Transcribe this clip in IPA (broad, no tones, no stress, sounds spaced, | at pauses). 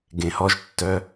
ɡ ẽ h ɔ ʒ tː œ